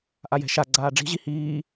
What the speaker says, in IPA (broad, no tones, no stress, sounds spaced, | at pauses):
ʔ a j ɛ̤ ʃ a ɡ͡ǀ aː ɖ͡ʐ i̤ ʑ i h iː